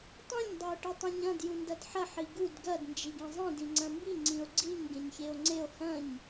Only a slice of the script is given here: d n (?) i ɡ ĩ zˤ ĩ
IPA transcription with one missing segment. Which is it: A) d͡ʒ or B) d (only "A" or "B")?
A